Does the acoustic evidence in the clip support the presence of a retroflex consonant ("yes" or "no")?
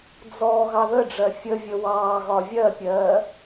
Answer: yes